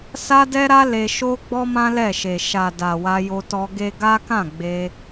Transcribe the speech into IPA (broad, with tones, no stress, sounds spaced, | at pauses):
s a˦ d ɛ˦ ɾ a˦ l e˧ ʃ o˦ ɡ͡b ɔ˦ m ã˦ l ɛ˦˨ ʃ e˨ ʃ a˨ d a˨ w a˧ j o˧ t ɔ˧ ɡ e˦ ɡ a˦ k ã˦˨ ɡ͡b e˧